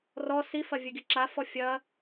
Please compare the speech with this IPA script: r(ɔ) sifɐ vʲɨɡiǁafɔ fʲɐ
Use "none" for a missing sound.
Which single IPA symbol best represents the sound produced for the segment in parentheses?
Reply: ɔ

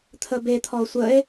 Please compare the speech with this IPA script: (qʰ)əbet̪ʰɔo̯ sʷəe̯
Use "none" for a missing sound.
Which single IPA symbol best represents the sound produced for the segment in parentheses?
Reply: t̪ʰ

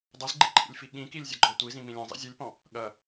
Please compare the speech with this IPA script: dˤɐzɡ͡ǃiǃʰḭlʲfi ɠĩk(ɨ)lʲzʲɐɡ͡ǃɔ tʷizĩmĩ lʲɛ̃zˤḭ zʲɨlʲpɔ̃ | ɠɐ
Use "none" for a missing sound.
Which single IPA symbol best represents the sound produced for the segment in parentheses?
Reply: i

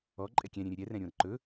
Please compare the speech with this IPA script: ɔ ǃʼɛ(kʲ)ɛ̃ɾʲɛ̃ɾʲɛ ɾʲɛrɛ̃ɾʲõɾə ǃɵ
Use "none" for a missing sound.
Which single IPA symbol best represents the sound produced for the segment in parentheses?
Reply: kʲ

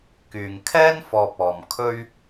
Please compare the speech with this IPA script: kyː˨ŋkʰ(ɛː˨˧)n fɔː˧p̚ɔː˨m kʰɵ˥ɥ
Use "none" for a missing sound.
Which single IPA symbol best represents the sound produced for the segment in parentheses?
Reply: ɛː˥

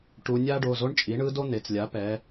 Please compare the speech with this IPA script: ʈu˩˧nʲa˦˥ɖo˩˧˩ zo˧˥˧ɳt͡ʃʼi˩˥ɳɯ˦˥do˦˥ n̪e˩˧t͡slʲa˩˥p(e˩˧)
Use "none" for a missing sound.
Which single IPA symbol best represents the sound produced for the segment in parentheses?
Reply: ɛ˩˧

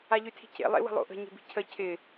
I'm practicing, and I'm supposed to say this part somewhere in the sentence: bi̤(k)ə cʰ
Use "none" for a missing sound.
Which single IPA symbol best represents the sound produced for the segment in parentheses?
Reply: cʰ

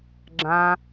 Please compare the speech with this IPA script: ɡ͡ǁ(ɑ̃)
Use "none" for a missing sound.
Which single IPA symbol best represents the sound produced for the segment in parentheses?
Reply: ã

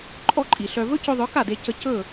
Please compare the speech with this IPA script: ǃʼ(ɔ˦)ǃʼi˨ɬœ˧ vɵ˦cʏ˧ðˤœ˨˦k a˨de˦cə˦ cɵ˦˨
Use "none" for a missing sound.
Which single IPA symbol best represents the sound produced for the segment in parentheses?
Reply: ɔ˦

